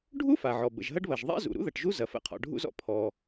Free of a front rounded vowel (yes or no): yes